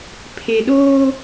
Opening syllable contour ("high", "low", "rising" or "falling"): low